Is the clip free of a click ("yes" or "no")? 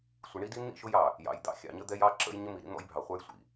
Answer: no